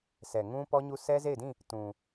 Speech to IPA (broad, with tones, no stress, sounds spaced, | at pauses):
sʰ ɛ˨ ŋ ũ˦ p ɔ˦ ɲ u˦ s ɛ˦ z e˦˨ ɪ̯ d ĩ˦˨ | t ũ˨